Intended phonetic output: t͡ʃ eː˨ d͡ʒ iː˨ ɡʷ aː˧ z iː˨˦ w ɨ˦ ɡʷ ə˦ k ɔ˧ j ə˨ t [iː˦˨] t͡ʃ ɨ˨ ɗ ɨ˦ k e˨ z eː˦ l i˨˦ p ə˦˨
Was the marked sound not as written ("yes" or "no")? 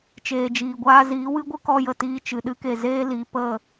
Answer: yes